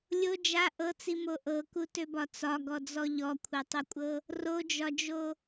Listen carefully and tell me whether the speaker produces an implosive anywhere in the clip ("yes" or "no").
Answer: no